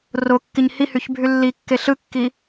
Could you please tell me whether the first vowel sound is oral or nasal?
oral